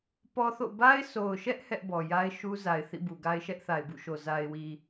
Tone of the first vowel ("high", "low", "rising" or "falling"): high